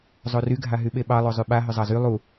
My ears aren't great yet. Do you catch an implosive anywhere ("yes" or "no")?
yes